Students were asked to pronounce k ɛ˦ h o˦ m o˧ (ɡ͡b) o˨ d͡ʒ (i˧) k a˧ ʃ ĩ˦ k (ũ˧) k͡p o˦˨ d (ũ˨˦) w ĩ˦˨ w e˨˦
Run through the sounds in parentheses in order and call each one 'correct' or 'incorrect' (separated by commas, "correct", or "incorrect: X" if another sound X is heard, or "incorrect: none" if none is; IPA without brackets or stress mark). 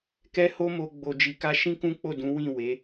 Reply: correct, incorrect: i˨, incorrect: ũ˦, correct